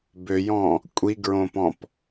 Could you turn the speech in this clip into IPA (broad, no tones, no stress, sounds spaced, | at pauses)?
b ø j ɔ̃ | kʷʼ i ɡ ɹ õ p ɔ̃ p